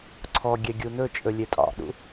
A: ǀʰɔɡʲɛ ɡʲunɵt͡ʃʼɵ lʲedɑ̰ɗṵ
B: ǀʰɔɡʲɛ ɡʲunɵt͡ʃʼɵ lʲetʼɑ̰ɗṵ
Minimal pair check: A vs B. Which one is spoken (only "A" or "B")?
B